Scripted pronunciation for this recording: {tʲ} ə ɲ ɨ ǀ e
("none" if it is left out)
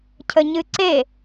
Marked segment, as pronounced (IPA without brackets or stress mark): cʰ